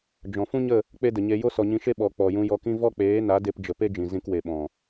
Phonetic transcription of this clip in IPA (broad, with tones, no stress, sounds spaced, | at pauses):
d͡ʒ ɔ̃˨ f ũ˦ ɲ ə˦˨ | k͡p e˦ d ə˨ ɲ e˧ j o˦ s ɔ˨ ɲ ĩ˧ ʃ e˦ ɓ ɔ˨ k͡p ɔ˨ j ũ˧ j ɔ˧ k ĩ˦ v ɔ˦ k͡p eː˨˦ n a˨˦ d e˧ p d͡ʒ ə˨ p e˦ d͡ʒ ĩ˨ z ĩ˧ k w e˨ ɓ ɔ̃˨